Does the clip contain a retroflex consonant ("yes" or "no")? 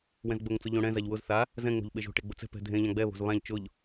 yes